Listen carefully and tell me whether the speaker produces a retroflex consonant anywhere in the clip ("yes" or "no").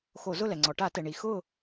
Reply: yes